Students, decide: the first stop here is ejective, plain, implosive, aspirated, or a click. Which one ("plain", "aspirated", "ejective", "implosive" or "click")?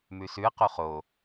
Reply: plain